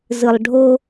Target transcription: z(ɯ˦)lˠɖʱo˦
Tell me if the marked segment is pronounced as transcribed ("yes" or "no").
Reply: no